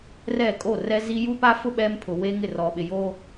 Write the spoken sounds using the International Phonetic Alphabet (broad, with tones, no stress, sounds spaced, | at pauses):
r ɛ˦˨ kʼ o˦˨ r ɛ˦ z i˦ j u˦ p a˦ f ʊ˦ ɓ ɛ˦ m pʰ ʊ˨ w e˦ ŋ ɪ˦˨ r ɔ˨ ɓ ɪ˨ j o˦